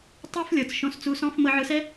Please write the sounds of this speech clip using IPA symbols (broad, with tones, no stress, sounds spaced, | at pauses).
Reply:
tˤ o˦ f lʲ ɤ˨ t͡s ʃ õ˧ s t͡s u˧ s ɔ̃˦ f m ɤ˧ ʕ ɯ˧ s ɛ˦